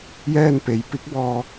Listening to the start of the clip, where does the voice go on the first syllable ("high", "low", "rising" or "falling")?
falling